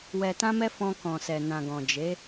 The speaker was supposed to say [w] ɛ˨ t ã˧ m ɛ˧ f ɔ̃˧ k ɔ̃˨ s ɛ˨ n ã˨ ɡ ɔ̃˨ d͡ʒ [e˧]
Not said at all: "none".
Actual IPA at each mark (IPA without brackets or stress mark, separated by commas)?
w, e˨˦